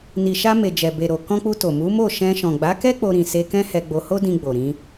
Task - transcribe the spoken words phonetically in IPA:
n i˨ ʃ a˧ m e˨ d͡ʒ ɛ˨ b e˨ ɾ o˨ k ɔ̃˧ k͡p u˧ t o˨ m u˨˦ m o˦˨ ʃ ɛ̃˧ ʃ ɔ̃˨ ɡ͡b a˨˦ k ɛ˦ k͡p o˧ ɾ ĩ˨ s e˧ k ɛ̃˦ h ɛ˧ ɡ͡b o˧ h o˦ d ĩ˧ ɡ͡b o˨ ɾ ĩ˧

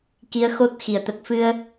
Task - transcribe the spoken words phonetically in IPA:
k i˧˥ ə̯ x o˦˥ t̚ x i˨˩ ə̯ t̪ ə˨˩ k̚ f ɨ˧ ə̯

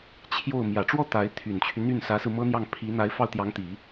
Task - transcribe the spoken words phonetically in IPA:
t͡ɕʰ j o˥˩ ʊ̯ m j ä˨˩ ʈ͡ʂ w ɔ˥˩ t̪ a˧˥ ɪ̯ t̪ʰ y˨˩ n t͡ɕʰ y˦ n̪ y˥˩ n s ä˧˥ s ɹ̩˧ m ɤ˥ n̪ j ɑ˥˩ ŋ pʰ i˧˥ n̪ a˧˥ ɪ̯ f ɑ˥˩ ʊ̯ t̪ j ɑ˧˥ ŋ t̪ i˨˩˦

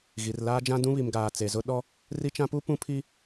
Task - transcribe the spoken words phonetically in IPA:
ɣ i˨ r l aː˦ d͡ʒ ã˦ d ũ˦ β i˨ m ɡ aː˨ t͡s e˨ z ʊ˦ ɗ ɔ˦ | r i˦ t͡ʃ ã˦ p u˦ p ũ˦ pʰ i˦

